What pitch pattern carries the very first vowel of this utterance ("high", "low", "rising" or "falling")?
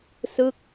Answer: falling